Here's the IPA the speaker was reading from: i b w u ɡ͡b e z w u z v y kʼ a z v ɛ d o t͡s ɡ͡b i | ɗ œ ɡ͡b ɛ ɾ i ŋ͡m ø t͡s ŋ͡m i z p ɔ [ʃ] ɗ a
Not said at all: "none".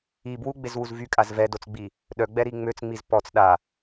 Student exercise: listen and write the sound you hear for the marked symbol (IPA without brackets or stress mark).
t͡s